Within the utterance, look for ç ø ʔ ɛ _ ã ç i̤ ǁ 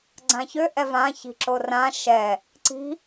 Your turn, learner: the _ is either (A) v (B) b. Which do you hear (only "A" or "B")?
A